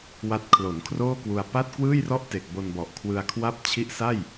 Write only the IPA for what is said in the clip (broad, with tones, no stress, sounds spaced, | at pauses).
w a˦˥ t̚ kʰ l o˩˦ n kʰ r oː˥˩ k w u˧ a̯ p a˥˩ t̚ k w ɯː˥˩ j r ɔ˥˩ ʔ t e˨˩ k̚ b o˧ n b ɔ˨˩ ʔ kʰ w ɯ˧ a̯ kʰ w a˥˩ p̚ t͡ɕʰ i˦˥ ʔ s a˥˩ j